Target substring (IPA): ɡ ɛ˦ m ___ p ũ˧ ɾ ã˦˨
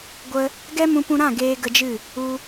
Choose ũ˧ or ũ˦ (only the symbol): ũ˧